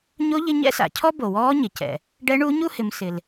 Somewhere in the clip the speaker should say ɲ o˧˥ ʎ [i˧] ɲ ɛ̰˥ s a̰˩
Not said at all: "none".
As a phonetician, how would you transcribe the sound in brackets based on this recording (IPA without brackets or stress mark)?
ɪ˧